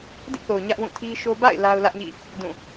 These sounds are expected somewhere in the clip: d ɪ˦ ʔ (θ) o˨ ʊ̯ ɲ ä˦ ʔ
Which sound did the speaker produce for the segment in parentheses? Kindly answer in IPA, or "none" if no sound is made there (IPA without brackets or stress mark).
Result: θ